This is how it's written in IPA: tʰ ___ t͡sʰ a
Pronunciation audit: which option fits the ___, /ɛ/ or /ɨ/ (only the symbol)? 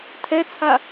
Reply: ɛ